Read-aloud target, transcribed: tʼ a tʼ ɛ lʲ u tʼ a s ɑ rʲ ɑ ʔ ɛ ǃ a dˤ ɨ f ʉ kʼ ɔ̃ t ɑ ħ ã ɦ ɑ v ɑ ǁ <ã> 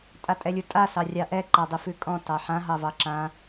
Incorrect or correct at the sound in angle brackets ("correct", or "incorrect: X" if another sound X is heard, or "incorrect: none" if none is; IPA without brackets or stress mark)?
correct